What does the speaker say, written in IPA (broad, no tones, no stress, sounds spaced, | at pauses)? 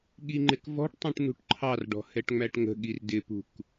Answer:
ɠ i ŋ͡ǃ ɪ k v ɔ̤ ʈ tˤ ũ ʈ n ṳ ʈ ǃʰ ɑ r ɖ ɔ̤ h ɛ ʈ ŋ͡m æ ʈ ŋ ə̤ ɠ i r d ɪ p ṳ k